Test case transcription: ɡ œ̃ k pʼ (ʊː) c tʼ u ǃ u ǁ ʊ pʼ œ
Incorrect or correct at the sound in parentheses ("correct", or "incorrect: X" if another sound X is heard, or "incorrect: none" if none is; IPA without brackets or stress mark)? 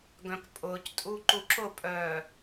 correct